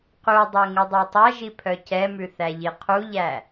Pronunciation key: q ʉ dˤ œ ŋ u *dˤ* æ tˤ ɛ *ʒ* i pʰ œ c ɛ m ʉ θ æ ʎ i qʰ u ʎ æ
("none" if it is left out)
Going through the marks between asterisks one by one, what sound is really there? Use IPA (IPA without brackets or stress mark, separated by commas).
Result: dˤ, ʒ